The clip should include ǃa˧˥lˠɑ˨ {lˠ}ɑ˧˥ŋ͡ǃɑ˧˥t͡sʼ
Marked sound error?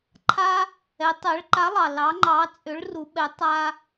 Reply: yes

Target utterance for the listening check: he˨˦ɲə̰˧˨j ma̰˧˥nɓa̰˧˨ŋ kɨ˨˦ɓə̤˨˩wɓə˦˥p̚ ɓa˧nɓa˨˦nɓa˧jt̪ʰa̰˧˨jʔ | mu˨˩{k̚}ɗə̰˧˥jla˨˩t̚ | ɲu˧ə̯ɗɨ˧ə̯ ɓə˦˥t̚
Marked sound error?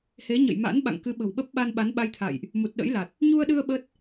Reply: yes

